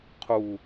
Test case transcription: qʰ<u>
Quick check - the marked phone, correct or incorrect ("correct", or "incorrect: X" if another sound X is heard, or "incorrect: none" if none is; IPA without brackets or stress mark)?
correct